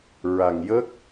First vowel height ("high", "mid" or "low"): low